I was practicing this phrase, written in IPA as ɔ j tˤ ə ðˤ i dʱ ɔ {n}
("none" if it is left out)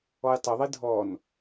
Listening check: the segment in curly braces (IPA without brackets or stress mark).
n